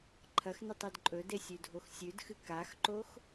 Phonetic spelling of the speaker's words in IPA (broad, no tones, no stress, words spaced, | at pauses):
ǃʰɐxnɨtˤed ǃʼɵde sʲʉdʱoxsʲʉdxɨ kaxǃox